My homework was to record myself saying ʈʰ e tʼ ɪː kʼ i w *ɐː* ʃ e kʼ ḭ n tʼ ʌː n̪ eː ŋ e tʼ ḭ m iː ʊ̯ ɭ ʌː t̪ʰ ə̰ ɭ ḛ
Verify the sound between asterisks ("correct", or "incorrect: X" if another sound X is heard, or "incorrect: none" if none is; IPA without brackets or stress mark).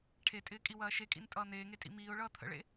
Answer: correct